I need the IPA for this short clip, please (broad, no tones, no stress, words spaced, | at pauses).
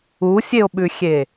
usʲeo̯ɓʉxʲe